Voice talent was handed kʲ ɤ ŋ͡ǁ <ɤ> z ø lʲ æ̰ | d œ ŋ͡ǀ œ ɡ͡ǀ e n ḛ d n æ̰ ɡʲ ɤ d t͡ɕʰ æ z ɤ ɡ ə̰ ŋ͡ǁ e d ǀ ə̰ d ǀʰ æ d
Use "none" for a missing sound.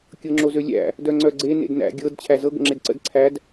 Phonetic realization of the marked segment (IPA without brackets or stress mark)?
o